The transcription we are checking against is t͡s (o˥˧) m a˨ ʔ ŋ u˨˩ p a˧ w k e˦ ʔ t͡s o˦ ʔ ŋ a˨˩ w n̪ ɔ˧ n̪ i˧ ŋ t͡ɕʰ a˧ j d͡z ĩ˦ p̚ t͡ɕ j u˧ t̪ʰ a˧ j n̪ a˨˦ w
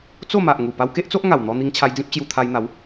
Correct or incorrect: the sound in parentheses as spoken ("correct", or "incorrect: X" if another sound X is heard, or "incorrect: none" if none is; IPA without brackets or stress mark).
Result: correct